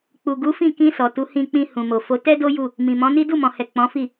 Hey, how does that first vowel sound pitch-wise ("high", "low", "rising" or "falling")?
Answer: low